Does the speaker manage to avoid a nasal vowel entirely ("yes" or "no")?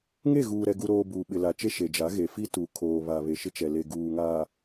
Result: yes